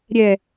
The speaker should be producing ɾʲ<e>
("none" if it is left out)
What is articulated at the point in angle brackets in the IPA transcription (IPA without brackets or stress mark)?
ɛ